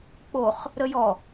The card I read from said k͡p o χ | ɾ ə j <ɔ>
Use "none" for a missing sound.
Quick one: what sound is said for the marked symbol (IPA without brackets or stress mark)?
ɔ